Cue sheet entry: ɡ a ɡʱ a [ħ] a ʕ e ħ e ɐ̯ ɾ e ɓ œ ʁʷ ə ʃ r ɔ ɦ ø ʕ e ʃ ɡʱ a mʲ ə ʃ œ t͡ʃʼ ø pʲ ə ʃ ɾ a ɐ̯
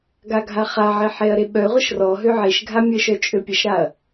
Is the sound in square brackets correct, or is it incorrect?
incorrect